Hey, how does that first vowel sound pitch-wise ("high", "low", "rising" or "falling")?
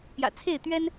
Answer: low